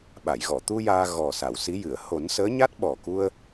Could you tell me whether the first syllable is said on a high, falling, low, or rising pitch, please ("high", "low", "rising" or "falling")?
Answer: low